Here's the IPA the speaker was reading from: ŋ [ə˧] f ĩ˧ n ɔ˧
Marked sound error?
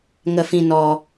no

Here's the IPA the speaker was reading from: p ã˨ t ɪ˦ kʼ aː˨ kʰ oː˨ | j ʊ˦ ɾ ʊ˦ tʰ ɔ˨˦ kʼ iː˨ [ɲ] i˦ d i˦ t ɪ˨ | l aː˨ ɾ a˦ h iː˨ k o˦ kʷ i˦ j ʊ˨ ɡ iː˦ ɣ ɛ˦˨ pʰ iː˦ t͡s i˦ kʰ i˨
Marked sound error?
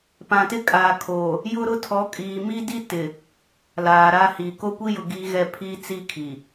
yes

